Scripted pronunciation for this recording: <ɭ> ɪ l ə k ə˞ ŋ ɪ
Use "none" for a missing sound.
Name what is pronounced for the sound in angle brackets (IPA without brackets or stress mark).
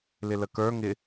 l